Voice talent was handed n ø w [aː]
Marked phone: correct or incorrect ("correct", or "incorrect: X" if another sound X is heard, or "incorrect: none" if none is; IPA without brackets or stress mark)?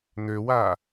correct